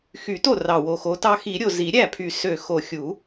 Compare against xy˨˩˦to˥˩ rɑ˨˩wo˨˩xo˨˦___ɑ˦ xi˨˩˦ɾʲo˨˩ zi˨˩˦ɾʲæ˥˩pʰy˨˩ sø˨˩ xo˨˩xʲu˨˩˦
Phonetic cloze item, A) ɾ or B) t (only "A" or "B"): B